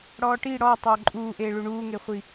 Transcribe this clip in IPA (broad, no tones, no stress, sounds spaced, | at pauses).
ɽ ɔː ʈ i ɽ ɔ tˤ ʊː ǃʼ uː ʔ e ɭ u ɳ uː ŋ e χʷ i